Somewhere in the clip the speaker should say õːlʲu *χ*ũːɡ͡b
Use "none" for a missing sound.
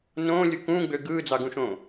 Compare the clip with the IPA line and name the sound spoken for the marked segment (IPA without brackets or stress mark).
k